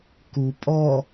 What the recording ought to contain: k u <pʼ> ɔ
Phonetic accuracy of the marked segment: correct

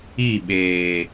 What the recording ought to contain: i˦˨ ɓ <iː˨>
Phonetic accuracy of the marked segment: incorrect: eː˨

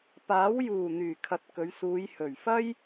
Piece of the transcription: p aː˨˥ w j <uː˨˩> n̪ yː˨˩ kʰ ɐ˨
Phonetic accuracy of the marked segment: correct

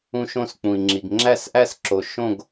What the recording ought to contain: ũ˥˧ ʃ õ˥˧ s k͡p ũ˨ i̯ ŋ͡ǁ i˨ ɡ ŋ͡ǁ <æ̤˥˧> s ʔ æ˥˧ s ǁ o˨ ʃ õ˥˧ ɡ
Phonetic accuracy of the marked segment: incorrect: æ˥˧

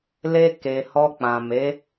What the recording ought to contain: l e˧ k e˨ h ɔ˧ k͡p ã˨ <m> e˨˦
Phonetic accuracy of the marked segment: correct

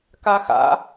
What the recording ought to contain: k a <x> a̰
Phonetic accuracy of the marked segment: correct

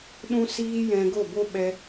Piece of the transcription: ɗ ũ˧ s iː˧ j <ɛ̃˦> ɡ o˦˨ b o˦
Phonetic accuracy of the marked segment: incorrect: ɛ̃˧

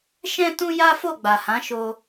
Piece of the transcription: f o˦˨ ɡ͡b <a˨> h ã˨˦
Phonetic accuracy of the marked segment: correct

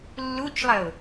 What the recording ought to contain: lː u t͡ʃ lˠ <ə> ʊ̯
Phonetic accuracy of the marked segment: correct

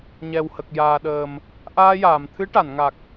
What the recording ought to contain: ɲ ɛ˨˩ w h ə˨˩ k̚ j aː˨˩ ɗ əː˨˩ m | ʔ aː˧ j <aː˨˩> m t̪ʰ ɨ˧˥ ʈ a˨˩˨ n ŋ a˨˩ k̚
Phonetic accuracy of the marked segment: incorrect: aː˨˩˨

